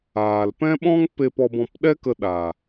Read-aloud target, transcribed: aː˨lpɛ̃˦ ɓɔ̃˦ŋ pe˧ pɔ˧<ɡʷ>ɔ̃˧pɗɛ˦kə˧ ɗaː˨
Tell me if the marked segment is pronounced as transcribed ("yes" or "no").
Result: no